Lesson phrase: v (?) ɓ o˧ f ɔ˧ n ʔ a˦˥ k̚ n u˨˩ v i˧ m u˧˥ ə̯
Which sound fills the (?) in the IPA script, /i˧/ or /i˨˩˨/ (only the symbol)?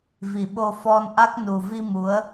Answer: i˨˩˨